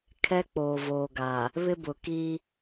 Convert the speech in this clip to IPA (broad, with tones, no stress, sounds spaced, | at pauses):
kʰ ɛ˦ k͡p oː˨ v oː˨ ɡ a˨ | β ɪ˦ b ʊ˨ k i˦